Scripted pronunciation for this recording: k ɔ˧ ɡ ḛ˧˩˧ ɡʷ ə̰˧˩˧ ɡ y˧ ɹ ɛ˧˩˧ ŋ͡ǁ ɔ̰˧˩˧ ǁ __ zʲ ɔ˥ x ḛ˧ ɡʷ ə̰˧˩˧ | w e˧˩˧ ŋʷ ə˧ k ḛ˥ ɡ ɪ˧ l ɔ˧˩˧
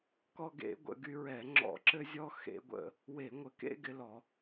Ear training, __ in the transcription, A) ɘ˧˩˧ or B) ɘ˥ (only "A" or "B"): B